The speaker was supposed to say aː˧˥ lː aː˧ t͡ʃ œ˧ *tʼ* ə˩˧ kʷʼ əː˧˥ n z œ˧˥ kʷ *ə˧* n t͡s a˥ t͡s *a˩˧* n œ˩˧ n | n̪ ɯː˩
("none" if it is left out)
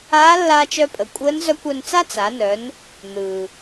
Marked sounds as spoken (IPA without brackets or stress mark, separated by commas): pʼ, œ˧, a˩˧